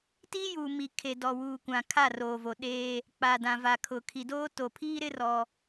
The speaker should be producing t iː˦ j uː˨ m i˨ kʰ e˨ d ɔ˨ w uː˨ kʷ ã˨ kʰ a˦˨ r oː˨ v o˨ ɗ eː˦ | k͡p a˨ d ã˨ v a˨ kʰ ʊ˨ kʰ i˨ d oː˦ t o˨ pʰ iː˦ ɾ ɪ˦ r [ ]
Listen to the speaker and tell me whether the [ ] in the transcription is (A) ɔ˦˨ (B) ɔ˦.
B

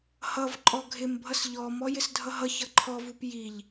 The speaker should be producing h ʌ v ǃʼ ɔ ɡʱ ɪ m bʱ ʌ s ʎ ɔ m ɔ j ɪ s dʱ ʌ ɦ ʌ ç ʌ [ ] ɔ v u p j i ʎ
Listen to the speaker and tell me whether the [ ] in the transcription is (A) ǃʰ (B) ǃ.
A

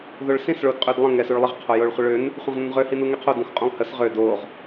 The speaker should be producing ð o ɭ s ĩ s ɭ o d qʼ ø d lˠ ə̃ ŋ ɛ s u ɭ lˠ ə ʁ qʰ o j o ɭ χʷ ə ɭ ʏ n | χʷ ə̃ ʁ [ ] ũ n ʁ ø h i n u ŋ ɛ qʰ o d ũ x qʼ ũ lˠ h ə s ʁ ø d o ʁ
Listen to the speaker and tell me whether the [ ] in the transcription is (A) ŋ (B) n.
B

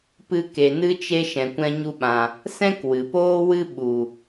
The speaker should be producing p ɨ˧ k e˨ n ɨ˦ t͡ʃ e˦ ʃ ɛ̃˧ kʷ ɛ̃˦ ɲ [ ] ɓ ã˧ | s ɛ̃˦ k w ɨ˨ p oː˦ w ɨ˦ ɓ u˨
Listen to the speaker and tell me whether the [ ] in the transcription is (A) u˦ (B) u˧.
A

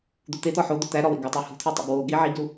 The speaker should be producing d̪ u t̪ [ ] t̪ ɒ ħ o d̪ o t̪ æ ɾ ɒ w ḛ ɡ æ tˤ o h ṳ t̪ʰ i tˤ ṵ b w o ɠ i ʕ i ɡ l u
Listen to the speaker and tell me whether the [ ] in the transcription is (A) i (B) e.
B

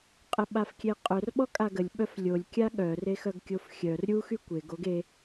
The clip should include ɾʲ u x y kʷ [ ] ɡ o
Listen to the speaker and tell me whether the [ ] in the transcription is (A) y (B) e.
B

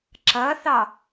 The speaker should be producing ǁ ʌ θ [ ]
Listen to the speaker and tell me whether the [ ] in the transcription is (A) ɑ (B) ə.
A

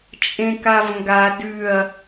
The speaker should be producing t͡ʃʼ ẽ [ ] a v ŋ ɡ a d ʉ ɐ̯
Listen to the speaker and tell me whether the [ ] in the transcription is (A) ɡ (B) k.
B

